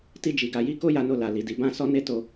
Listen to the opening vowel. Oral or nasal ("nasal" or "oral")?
oral